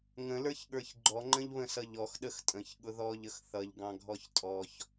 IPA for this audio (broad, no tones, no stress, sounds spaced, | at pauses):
ŋ ə̃ l ə˞ ç ɠ ə˞ ç ɡ͡ǃ ɔ ŋ͡ǃ ə̃ ʎ β ə̃ s ʌ ʎ ɔ x ɗ ə x tʼ ə̃ ç ɠ ʊ ð ɔ ʎ ə x θ ʌ ʎ ɡ ɑ̃ ɡʱ ɔ ç tʼ ɔ ç